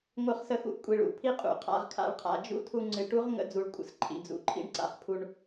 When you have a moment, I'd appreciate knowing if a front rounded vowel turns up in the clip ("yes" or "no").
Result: no